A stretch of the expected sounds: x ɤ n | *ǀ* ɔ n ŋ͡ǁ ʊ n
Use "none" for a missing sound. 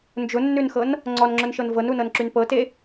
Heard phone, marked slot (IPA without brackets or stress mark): ŋ͡ǀ